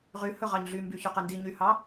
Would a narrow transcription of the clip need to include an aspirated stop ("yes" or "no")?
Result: no